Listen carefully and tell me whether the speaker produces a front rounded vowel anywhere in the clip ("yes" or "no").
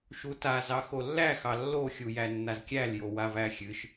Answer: no